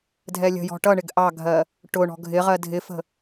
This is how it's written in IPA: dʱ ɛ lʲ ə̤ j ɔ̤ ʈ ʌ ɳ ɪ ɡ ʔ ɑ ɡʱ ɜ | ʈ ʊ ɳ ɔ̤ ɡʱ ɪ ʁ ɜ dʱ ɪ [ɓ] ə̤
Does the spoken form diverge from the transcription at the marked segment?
yes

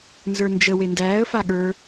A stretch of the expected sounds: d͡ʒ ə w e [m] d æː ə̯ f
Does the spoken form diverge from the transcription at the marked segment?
yes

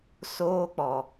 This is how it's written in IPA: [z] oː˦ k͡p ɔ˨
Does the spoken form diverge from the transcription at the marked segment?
yes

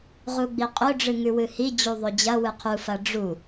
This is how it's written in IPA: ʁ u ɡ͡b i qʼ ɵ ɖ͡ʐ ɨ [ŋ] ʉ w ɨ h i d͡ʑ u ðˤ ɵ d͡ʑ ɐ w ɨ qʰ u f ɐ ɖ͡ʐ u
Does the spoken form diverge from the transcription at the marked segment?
no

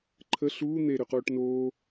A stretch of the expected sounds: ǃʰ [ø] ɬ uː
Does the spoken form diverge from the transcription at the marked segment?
yes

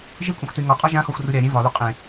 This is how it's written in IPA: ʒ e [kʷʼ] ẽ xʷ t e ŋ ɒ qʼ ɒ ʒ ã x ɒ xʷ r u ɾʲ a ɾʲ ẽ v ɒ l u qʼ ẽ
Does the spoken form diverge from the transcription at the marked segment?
no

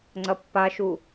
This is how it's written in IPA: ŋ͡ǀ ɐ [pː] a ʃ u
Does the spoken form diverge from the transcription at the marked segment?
no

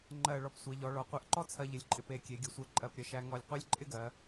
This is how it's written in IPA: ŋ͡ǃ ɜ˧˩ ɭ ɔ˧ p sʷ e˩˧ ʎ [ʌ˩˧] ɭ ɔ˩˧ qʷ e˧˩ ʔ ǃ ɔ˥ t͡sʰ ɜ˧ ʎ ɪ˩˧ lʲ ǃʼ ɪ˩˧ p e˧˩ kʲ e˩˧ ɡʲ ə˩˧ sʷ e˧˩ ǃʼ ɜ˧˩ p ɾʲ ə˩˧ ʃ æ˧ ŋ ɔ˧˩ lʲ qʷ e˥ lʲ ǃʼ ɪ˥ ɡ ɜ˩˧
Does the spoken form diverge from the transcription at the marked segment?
yes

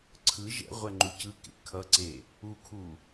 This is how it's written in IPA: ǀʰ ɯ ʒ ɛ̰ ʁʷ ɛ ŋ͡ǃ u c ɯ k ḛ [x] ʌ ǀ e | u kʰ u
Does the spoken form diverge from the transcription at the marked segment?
yes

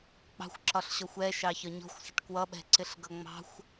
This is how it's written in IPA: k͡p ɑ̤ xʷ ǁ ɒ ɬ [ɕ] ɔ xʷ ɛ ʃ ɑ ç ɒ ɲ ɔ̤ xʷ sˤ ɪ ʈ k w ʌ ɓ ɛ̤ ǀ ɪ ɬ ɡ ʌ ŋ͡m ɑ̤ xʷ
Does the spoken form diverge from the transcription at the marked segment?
no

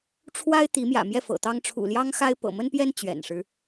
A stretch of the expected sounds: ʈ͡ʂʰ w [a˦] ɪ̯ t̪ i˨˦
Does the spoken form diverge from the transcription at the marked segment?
no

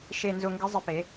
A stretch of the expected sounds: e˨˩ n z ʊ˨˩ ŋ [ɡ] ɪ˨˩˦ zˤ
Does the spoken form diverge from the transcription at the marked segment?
no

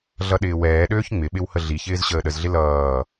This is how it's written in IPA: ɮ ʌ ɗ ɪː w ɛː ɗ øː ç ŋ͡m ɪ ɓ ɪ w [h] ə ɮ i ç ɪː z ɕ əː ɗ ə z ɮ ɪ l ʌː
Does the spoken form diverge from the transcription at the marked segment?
no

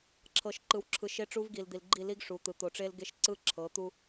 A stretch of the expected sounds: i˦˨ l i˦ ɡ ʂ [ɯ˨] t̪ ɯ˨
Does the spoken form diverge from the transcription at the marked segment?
yes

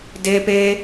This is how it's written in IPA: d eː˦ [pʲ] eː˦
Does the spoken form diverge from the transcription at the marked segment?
yes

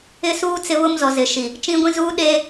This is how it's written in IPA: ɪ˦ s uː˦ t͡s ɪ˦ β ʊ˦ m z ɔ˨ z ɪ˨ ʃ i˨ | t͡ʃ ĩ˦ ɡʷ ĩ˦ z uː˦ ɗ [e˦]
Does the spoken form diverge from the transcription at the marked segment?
no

